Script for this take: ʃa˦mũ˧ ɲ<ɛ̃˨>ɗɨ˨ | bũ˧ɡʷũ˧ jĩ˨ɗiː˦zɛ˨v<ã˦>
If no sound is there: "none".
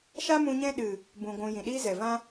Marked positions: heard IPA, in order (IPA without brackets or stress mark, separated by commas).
ɛ̃˦, ã˦